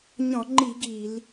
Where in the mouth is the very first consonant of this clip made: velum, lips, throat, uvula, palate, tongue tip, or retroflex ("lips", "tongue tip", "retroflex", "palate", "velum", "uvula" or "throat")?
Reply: palate